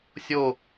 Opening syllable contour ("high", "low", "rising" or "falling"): falling